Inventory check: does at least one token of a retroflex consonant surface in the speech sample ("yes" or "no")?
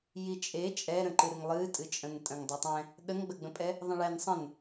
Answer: yes